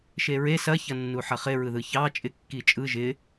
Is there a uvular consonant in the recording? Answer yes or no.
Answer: yes